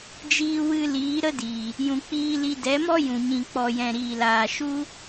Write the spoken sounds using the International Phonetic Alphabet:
d͡ʒ iː˧ w ɨ˧ l iː˨˦ ɾ ə˦ d iː˨ | j ũ˨ k͡p iː˧ l i˧ d ɛ˨˦ m ɔ˦ j ũ˨ ɲ ĩ˨ k͡p ɔ˨ j ɛ̃˨ ɾ iː˨ l aː˨ ʃ u˦

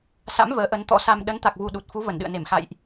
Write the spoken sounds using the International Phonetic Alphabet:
s a̰˧˥ m v əː˨˦ ʔ ə˨˦ n t̪ ɔ̰˧˥ s a˧ m ɗ ə˨˦ n t̪ a˨˩ k̚ v u˨˩ ɗ u˨˩ t̚ f u˨˦ v ə˧˩ n ɗ ɨ̰˧˨ ə̯ n e˧˩ m x a̰˧˨ j ʔ

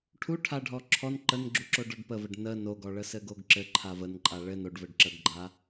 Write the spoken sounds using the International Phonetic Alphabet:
ʈʰ u ʈʰ a ɖʱ ɔ ǁʰ ɔ n ǃ ə n ɡ͡ǁ u ǁ o ɖ ɔ ɖ p ə v ə ɖ n ə n o ɡ ɔ ɭ ə s ɘ ɡ o ɡ ǁ ɘ ǃʰ a v ə n ǃʼ a ɭ ɘ n o ɖ v ɘ ɖ ǁ ə ɡ ɡ͡ǃ a

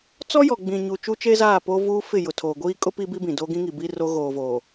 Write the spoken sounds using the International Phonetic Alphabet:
t͡s ɔ˦ j ɔ˨ ɡ͡b ĩ˨ ɲ u˨ t͡ʃ u˦ t͡ʃ e˦ z aː˦˨ p o˦ v uː˦ f ɪ˦˨ j ʊ˨ tʰ oː˨ ɡʷ iː˦ kʼ ʊ˦ p i˦ b i˦ b ĩ˨ d o˦ ɡ ĩ˦ ŋ i˨ b i˦ r o˦ ɣ oː˨ v oː˨

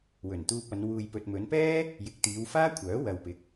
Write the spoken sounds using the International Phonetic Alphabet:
w ɵ˨˩ n t̪ uː˧ p̚ ɐ˨˧ n w uː˨ j p ɵ˨ t̚ m ɵ˨˧ n p ɛː˥ | j ɪ˨ k̚ t̪ iː˨˧ w f aː˥ kʷʰ œː˨˥ w ɐ˨ w p ɪ˨ k̚

